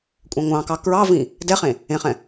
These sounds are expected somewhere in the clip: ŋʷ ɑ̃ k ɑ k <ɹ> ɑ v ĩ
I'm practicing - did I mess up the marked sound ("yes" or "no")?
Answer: no